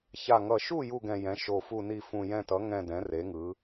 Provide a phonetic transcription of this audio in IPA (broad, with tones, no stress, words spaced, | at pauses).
ça˨˩ŋʌ˨˩ʃu˦˨ ju˦˨ɡɛ̃˨˩jɛ̃˩˥ ʃo˨˩fu˦˨ni˦˨ fũ˨˩jɛ̃˦˨tʌ˩˥ ŋɛ̃˦˨dɛ̃˩˥ re˩˥ŋɯ˩˥